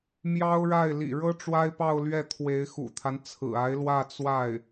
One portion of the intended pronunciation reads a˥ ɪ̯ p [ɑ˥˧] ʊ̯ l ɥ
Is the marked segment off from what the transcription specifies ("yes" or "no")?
no